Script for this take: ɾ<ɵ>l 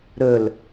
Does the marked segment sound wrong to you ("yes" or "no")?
no